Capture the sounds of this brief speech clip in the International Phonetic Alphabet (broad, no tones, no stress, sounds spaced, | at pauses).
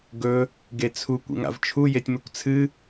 ɡ ɵ | ɡ e t͡sʰ u kʷ ḭ ŋ a̰ v t͡ʃʰ u j e tʲ m ɨ kʷ t͡sʰ ɨ